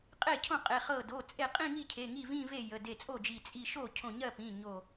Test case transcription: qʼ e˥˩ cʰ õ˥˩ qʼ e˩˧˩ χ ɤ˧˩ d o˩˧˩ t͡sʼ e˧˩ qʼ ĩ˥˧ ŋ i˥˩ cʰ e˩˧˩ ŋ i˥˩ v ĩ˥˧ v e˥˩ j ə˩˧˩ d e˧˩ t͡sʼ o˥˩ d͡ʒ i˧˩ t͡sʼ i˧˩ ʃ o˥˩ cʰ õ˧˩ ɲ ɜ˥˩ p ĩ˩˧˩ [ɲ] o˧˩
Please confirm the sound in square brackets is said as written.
yes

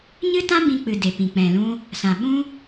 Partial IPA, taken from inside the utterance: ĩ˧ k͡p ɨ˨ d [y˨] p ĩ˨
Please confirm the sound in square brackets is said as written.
no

